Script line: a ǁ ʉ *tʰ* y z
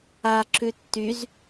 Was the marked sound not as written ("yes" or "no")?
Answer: yes